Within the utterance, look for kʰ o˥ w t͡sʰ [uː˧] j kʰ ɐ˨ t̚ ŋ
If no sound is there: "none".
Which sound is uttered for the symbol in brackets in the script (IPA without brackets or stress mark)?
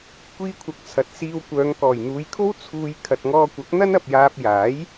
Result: uː˨